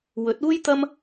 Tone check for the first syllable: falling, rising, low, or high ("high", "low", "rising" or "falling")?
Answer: rising